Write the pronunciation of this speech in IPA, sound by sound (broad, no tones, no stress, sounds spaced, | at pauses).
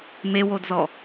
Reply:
m e w o d z ɔ